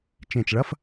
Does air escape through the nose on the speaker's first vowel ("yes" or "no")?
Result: yes